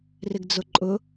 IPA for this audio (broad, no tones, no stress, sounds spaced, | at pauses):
r ɪ ɡ d͡z ʊ ǃʼ ʊ